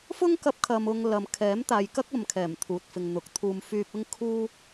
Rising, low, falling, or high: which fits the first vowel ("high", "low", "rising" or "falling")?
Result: high